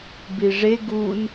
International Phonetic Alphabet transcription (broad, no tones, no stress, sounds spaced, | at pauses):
b i ʐ e ɡ u n